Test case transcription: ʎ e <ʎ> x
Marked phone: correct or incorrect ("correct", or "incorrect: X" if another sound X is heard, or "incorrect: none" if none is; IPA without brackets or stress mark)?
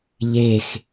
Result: incorrect: none